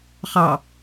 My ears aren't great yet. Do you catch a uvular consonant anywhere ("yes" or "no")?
yes